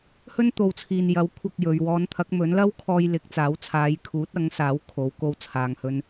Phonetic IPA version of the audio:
h ɵ˥ n t̪ o˨ w t͡sʰ iː˨ n j ɐ˨˥ w kʷʰ ɐ˥ k̚ j ɵ˨˧ ɥ w ɔː˨˧ n t̪ʰ ɐ˨˥ k̚ m ɵ˨˥ n l ɐ˥ w kʰ ɔː˧ j l ɪ˨˥ k̚ t͡s aː˨˥ w t͡sʰ aː˨˧ j kʰ uː˨˥ t̚ ɐ˨˥ ŋ s aː˨˥ w kʰ o˨˥ w k o˥ w t͡sʰ aː˧ ŋ h ɵ˥ n

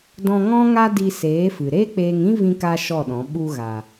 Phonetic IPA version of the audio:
d ɔ̃˧ ŋ ɔ̃˦ ŋ a˦ d i˧ s eː˨˦ f ɨ˨ ɾ e˦ k͡p eː˧ ŋ ĩ˦ v ĩ˧ k a˧ ʃ ɔ˦˨ ɗ ɔ̃˨˦ ɓ u˧ ɣ a˨

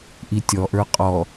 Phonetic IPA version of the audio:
ʔ i tʲ ɔ ʔ ə˞ qʼ ɔ

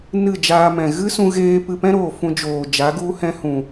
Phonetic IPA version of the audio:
n ɨ˦˨ d͡ʒ aː˧ m ɛ̃˨ ɣ ɨ˦ s ũ˧ ɣ eː˧ p ɨ˧ p ɛ̃˦ ɾ oː˨ f ũ˧ d͡ʒ oː˨ d͡ʒ a˨˦ ɡ u˦ h ɛ̃˦ h ũ˨

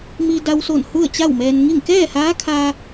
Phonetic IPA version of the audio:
m i˧ d a˧ w s o˧˩ n h u˥˨ ə̯ t͡ɕ a˥˨ w m ɛː˧ n ŋ i˥˨ ŋ k ɛː˥˨ h aː˧˥ kʰ a˧

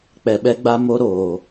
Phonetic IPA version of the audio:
k͡p ɛ˨ ɓ ɛ˦ ɡ͡b a˦ m o˦ ɾ oː˨

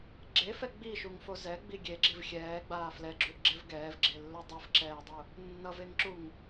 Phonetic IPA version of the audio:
ɡ͡ǁ e f ɛ ɡ͡b i ʃ u ŋ f o z ɛ ɡ͡b i ɡʲ e ɡ͡ǁ i v xʲ ɛː ɡ͡b aː f l ɛ ɡ͡ǁ u ʔ ɡ͡ǁ ɛ v ɡ ɛː v ɡ͡ǁ e lː o dˤ ɯ f ǁ ɛː dˤ u | nː ʌ v e ŋ ǁ u ŋ

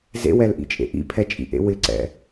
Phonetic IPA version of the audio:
z ḛ w ɛ l ʔ ḭ t͡ʃʼ ḛ ʔ ḭ pʰ ɛ t͡ʃʼ ḭ ʔ ḛ w ɪ ǀ ɛ̰

